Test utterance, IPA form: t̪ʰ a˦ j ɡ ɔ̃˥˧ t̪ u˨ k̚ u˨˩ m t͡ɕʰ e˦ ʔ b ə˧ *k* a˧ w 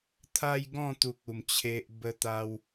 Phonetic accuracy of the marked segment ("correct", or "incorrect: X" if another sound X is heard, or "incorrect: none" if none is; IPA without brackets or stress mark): incorrect: t̪